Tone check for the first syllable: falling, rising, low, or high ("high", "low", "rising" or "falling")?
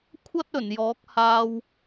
high